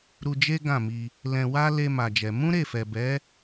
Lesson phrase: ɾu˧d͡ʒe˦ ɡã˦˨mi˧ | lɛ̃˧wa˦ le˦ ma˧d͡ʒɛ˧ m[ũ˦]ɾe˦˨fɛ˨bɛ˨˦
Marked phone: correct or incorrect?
correct